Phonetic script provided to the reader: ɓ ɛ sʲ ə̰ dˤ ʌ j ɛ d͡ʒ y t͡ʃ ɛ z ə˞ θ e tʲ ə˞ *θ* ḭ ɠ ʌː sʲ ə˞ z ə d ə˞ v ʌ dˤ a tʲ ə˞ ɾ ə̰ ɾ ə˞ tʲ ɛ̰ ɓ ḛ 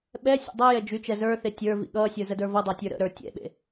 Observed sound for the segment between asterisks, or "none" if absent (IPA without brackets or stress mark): v